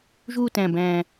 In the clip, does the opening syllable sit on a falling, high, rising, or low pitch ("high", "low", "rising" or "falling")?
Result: falling